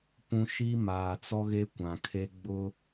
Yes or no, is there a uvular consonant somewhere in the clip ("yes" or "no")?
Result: no